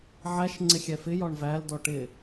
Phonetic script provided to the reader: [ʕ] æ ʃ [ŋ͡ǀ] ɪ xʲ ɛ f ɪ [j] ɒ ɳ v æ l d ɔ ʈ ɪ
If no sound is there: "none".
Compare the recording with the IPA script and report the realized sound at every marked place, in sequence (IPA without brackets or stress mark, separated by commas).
ʕ, ŋ͡ǀ, j